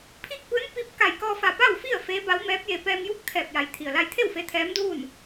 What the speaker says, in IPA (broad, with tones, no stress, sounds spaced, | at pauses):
pʰ iː˥˨ k̚ p ɯː˧˥ n p i˧ p̚ k a˧˩ j k ɔː˧ f a˧˩ p a˥˨ w f i˥˨ ə̯ f eː˧˥ b a˧˥ w m ɛː˧˥ p̚ j e˧ p ɛː˧ m j u˥˨ k̚ t̪ʰ ɛː˧˩ p̚ j a˩ j t̪ʰ i˩ ə̯ l a˧ j t̪ʰ e˥˨ w f e˧˥ t̪ʰ ɛː˧˥ m d uː˥˨ n